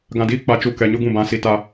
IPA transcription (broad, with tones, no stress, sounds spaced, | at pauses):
ɡ ã˨ d iː˨˦ k͡p a˨ t͡ʃ u˨ k ɛ˨ ɲ ʊ˦ ɡ ũ˦˨ b ã˨˦ s i˦ t a˦